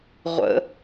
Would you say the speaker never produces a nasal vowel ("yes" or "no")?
yes